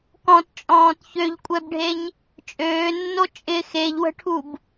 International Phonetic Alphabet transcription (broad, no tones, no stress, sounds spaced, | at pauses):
k ɔ̃ t t͡ʃʼ ɔ̃ː t ç ø ʎ kʷʼ ɛ b ɖʱ e ɲ | t͡ʃʼ øː nː o t͡ʃʼ ɪ x e ʎ w ə̤ ʈʰ u b